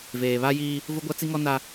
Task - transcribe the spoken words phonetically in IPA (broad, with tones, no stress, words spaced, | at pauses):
veː˨βa˦jiː˦ | vʊ˦ɡʷa˦t͡si˦ŋɔ˦ na˦